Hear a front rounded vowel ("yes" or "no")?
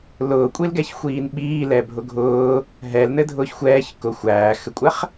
no